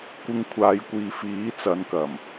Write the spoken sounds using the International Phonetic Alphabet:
kʷ ɪ˧ ŋ kʷʰ aː˨˧ j kʷ iː˨ f iː˨˥ t͡s ɐ˨˧ n k ɐ˨˩ m

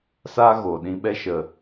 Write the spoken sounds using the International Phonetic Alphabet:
s a˦ ɣ o˨ ɗ ĩ˧ ɓ ɛ˧ ʃ ə˨

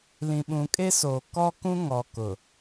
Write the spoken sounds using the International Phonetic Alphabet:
l ĩ˨ ɓ ũ˨ kʼ e˦ s oː˨ k ɔ˦ k ũ˦ ŋ ɔ˨ k ʊ˨

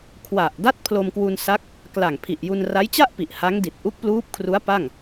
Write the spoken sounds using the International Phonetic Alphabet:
kʰ w a˨˩ ʔ d a˥˩ t̚ pʰ l o˧ m k w u˧ n s a˦˥ k̚ | k l a˨˩ ŋ pʰ i˨˩ ʔ j u˧ n r a˦˥ j t͡ɕ a˥˩ ʔ p i˨˩ ʔ h a˦˥ ŋ d i˨˩ t̚ ʔ u˦˥ k̚ p l uː˦˥ p̚ kʰ r u˦˥ a̯ p a˥˩ ŋ

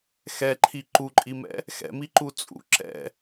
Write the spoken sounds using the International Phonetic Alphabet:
x ɛ ǃʰ i ǃ u ǃʼ i m ɛ̰ | x ɛ̰ m i ǃ u t͡sʼ ṵ ǁ ɛ̰

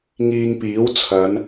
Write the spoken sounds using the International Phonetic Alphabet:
ŋ iː˧ ŋ p iː˨˥ w t͡sʰ ɐ˨˧ n

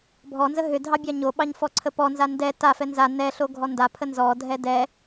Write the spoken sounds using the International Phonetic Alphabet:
bʱ ɔ n z ə ɦ ʏ dʱ ɑ bʲ ɑ ɲ o ɓ ɑ ɲ f ɔ ǀʰ ə p ɔ n z a n d ɛ t a f ɛ n z a n ɛ ɬ o ɡʱ ɔ n d a pʰ ə n z ɔ dʱ ɛ d ɛ

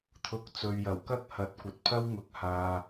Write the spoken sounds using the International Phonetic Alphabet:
t̪ʰ ʊ˨˥ k̚ t͡s ɵ˨ ɥ j ɐ˨˩ w k ɐ˥ k̚ h ɐ˨˥ t̚ kʷ ɐ˨ t̚ pʰ ɐ˥ w ŋ ʊ˨˥ k̚ h aː˨

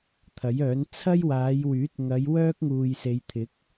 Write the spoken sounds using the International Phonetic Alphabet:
t̪ʰ ɐ˨˥ j œː˨˥ n t͡sʰ ɐ˥ j w aː˨˧ j w yː˨˥ t̚ ŋ ɐ˨˧ j w œː˥ k̚ ŋ uː˨ j s e˨˧ j t̪ʰ ɪ˨˥ k̚

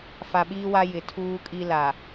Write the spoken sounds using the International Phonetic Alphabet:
f a˨ ɓ iː˦ w a˦ j ɪ˨ tʰ uː˦ kʼ i˦ l a˨

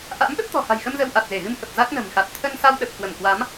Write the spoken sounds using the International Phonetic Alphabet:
ʔ a̰˧˥ m ɗ ə˦˥ p̚ t̪ ɔ̤˨˩ h a̤˨˩ j x ə˧ m z ə˧ w ʔ a˨˩ t̚ z e˧˩ ɣ ɨ˧ m h ə˨˩ p̚ z a˦˥ k̚ n ə̤˨˩ m x a˨˩ t̚ t̪ʰ ə˧ n s a˧ w ɗ ə˨˩ p̚ k w ə˧˩ m k w a˨˦ m

